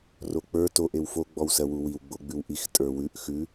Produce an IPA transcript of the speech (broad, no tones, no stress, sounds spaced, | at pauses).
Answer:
r o k͡p ə˞ t o ʔ e w f o ɡ͡b ɔ w s ɜ w u w i w ɡ͡b o ɡ͡b ʉ w ʔ i x tʼ ə˞ w ʉ ʔ x ʉ